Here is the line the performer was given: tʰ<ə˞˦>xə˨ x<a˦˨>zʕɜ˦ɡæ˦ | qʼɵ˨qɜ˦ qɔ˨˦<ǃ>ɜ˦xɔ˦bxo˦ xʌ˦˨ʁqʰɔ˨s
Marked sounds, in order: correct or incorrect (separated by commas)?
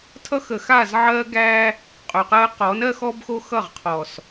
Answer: incorrect, correct, incorrect